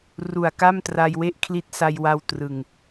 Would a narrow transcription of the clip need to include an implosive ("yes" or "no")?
no